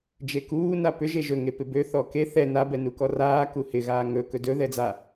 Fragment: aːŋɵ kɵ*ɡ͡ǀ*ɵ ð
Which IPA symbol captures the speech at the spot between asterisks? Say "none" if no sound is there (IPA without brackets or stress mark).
d